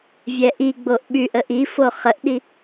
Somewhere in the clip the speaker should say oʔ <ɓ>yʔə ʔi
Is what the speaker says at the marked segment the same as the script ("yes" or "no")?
yes